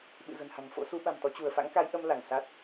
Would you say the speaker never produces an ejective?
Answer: yes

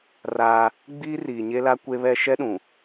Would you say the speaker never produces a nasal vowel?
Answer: no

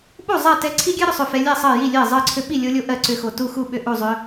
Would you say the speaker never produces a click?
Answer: no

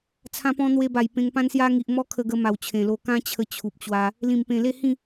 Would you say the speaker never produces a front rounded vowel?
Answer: yes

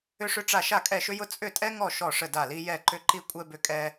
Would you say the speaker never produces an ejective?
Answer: no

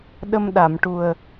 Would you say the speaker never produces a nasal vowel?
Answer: yes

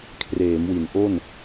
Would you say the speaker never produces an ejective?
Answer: yes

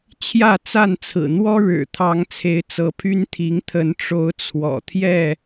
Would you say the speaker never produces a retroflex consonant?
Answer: no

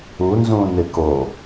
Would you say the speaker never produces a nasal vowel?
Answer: no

